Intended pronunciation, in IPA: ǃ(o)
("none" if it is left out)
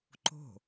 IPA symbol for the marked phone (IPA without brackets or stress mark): o̤